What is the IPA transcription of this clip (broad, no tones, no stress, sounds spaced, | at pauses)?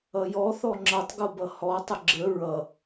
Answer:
ʌ j ɔ θ ɔ ŋ͡ǁ ʌ tˤ ɡ o b ʌ h ɔ tˤ ə ɡ͡ǁ ə ɹ ʌ